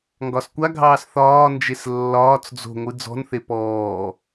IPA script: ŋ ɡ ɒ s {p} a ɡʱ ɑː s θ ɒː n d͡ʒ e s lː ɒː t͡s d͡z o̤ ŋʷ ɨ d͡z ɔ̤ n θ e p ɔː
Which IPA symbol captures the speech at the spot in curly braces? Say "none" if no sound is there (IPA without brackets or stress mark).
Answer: kʷ